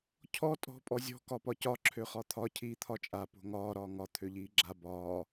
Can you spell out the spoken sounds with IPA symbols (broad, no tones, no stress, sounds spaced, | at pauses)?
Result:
cʰ ɔ tʼ ɔ̤ pʼ ɔ zʲ ɔ̤ k ɒ p ɒ c ɒ ǁʰ ø χ ɒ t̪ʰ ɒ cʰ iː t̪ʰ ɒ t͡ʃʼ a p o̤ ŋ ɒː ɾ ɒː ŋ ɒ t̪ʰ ø ʎ iː ɡ͡ǁ a b ɒː